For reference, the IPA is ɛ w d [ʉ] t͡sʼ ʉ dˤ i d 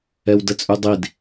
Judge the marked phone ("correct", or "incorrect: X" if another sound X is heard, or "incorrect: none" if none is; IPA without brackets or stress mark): incorrect: ə